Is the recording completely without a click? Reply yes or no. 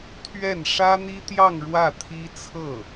yes